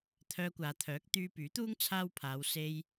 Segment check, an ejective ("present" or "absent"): absent